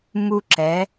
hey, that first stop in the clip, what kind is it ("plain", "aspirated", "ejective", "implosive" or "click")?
click